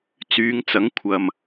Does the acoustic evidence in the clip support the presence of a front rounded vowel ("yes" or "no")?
yes